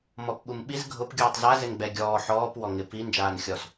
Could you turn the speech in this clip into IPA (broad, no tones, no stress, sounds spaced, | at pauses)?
m ɔ p ɓ u m ɓ i z ɡʱ ʊ p ɡʲ uː tˤ z a z ɪ n ɡ͡b ɛ ɡʲ ɔː ħ ɔː p w ɔ ŋ ɪ p i n d͡ʒ aː n xʲ ɔ s